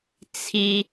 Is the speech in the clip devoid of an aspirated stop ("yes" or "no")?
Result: no